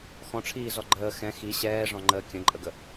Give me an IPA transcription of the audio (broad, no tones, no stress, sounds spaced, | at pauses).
x ɔ̃ ʈ͡ʂʰ iː z ɔ ɡ͡ǃ əː x ɛ̃ x i ɕ ɛː ʐ ɔ̃ ŋ͡ǃ əː kʲ ə̃ ǃʼ ə ɡ ə